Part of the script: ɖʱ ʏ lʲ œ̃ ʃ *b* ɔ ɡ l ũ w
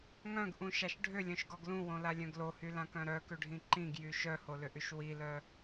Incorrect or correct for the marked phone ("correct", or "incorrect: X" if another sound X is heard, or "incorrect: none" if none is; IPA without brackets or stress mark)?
incorrect: ɡ